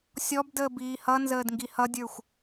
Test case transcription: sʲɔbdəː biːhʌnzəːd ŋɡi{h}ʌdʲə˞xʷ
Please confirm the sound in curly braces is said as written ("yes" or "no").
yes